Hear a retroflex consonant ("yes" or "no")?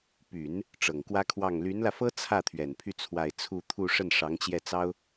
yes